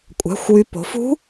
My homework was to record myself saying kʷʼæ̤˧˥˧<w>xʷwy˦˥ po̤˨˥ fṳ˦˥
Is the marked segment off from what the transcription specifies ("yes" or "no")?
yes